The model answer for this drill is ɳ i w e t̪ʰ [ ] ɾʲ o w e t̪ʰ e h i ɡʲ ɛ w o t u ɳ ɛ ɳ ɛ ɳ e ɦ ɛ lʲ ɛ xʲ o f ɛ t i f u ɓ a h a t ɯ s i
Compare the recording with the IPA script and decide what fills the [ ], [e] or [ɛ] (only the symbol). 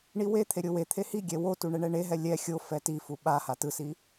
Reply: e